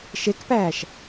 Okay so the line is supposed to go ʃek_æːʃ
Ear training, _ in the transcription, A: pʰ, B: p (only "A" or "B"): B